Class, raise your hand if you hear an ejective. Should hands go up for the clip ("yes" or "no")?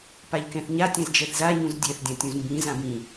no